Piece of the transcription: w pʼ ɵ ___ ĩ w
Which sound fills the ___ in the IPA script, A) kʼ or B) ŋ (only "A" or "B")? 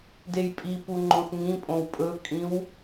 A